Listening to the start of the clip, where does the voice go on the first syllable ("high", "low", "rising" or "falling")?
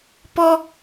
high